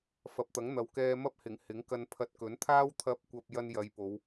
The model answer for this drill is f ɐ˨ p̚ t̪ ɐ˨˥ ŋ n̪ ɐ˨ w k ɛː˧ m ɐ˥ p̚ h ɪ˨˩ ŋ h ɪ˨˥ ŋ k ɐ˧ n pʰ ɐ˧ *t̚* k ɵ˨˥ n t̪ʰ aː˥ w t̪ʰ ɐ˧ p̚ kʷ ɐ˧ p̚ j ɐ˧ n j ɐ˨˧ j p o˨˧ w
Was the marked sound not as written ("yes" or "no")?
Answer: no